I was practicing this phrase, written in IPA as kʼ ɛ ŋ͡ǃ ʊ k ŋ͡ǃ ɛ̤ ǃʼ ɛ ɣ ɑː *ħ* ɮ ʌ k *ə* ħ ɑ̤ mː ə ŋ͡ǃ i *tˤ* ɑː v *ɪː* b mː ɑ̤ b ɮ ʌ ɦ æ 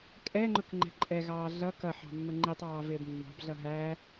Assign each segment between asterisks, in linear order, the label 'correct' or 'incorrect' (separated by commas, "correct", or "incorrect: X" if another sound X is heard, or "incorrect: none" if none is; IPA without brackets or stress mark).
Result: incorrect: none, incorrect: ʌ, correct, correct